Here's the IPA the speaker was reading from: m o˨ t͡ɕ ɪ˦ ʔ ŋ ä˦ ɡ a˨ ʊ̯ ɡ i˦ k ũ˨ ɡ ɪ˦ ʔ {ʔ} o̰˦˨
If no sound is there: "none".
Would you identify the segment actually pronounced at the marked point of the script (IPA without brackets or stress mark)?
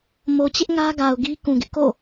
k